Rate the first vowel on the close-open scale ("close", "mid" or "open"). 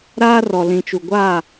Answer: open